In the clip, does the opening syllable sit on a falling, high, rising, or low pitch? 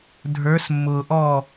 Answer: rising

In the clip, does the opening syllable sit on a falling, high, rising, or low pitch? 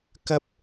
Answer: high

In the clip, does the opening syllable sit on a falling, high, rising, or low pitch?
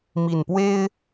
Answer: low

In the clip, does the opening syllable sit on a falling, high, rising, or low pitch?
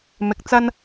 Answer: rising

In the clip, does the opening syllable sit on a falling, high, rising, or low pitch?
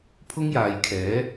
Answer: high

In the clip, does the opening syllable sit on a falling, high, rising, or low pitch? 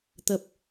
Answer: low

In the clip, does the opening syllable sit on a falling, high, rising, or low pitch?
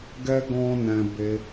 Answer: high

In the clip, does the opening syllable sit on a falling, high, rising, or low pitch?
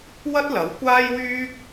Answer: high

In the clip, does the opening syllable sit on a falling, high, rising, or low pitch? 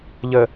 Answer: low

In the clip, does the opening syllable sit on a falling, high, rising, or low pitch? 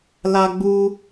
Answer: high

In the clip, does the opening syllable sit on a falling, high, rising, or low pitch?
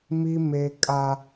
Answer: high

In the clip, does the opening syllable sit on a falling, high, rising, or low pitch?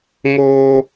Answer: low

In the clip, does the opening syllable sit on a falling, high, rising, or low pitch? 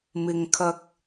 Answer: low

